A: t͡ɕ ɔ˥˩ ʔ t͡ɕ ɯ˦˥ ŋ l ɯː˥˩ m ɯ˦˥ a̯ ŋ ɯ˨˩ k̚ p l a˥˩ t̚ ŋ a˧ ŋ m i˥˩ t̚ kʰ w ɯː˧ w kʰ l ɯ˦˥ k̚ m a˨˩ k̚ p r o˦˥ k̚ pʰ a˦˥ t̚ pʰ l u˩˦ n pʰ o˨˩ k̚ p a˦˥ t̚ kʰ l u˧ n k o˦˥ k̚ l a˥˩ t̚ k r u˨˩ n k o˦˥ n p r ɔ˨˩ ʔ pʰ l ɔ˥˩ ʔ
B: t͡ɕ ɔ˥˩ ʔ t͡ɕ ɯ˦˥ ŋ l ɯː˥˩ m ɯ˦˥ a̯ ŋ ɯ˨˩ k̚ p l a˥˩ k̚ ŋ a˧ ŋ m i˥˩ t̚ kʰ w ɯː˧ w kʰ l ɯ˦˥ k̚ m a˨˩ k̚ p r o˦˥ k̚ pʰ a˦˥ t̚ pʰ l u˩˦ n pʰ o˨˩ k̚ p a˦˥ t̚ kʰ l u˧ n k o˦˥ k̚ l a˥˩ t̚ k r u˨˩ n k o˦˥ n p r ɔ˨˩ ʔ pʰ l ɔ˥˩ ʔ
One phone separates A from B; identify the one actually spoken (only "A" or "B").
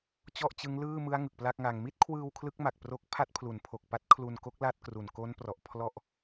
B